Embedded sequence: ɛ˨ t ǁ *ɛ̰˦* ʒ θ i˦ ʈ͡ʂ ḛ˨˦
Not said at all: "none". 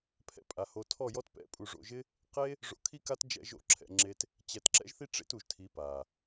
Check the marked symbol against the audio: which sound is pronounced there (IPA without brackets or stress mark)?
ɛ̰˦